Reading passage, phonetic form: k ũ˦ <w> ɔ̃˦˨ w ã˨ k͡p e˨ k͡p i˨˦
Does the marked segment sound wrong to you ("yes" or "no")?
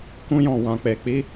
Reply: yes